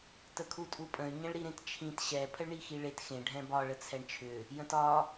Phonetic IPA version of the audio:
t ə kʰ u tʼ u pʼ ə̃ y̯ ɲ ə̃ ɭ ɾ i ɾ ẽ t t͡ʃʰ ĩ t ɕ ɛ pʰ ə ɭ ɳ i x i ɭ e t x ẽ ɖʱ ɛ̃ b ɒ ɭ ə t͡sʰ ɛ ɳ t͡ʃʰ ʏ | j ə̃ t ɒ

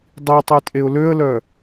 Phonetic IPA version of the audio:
dˤ i tˤ i tʼ e ʊ̯ l ø ə̯ l œ

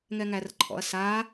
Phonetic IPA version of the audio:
ŋ ɛ ŋ æ r ǃʰ ɔ̰ ɐ̯ s a

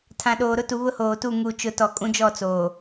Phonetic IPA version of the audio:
tʰ ã˨ ɗ oː˨ ɾ ʊ˦ t u˨ β ʊ˦ h oː˨ t u˦˨ ŋ u˨ t͡ʃ ʊ˨ t ɔ˨ kʼ ũ˦ d͡ʒ ɔ˦˨ t͡s oː˨

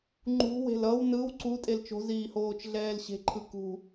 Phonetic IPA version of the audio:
ŋ͡ǃ ṳ w e̤ l ʌ w n ɯ w ǀ u tʼ e l t͡ʃ o̤ z iː h oː t͡ʃ ɮ ɛː l ɕ e̤ ǃʰ ɯ k ṳ

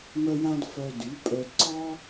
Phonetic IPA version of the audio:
m œ˧ j ã˧ d f œ˧ d y˩˥ pʼ œ˧ d ǀ ɔ˥

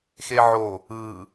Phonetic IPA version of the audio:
x e ʕ o | ɯ

